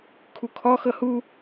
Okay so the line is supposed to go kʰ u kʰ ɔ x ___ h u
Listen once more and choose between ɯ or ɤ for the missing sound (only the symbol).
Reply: ɤ